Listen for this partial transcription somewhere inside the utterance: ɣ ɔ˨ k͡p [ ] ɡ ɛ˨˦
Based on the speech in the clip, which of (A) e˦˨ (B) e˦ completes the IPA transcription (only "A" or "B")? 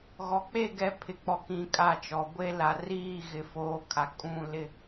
A